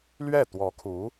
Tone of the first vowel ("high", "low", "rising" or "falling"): falling